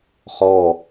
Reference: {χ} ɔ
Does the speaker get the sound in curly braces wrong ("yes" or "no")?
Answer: no